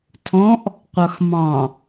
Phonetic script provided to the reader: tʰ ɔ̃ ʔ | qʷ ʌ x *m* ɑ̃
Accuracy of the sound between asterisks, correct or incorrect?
correct